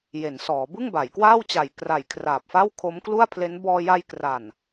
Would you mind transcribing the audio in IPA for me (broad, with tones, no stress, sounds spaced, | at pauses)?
j e˩˦ n s ɔː˩˦ b ɯ˥˩ ŋ b a˩˦ j k w aː˥˩ w t͡ɕ a˨˩ j k r a˨˩ j kʰ r aː˨˩ p̚ f a˥˩ w kʰ o˦˥ m k l u˥˩ a̯ pʰ l e˦˥ n b ɔː˧ j a˧ j k r a˨˩ n